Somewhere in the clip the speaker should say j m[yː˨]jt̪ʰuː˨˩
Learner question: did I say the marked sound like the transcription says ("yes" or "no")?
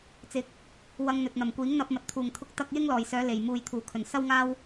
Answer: no